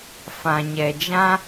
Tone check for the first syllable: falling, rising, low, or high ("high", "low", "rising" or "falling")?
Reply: low